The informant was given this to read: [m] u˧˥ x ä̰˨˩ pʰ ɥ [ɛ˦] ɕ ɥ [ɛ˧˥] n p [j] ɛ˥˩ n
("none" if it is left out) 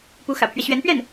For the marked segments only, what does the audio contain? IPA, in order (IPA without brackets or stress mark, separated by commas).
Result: p, ɛ˦, ɛ˧˥, ɥ